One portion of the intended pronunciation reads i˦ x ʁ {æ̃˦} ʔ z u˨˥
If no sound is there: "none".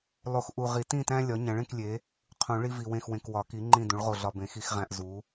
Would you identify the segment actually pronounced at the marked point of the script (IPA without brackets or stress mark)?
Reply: æ̃˦